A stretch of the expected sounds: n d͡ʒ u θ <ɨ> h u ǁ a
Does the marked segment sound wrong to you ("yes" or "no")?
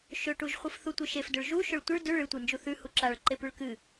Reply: yes